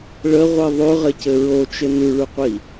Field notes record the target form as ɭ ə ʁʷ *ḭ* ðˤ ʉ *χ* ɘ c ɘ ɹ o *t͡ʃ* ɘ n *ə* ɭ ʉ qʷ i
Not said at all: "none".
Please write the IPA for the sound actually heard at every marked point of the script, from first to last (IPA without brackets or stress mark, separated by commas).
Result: i, ʁ, t͡ʃ, ʉ